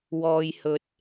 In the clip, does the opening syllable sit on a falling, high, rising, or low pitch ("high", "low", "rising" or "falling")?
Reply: low